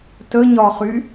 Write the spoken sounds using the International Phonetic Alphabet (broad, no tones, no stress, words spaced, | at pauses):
təɲɒχy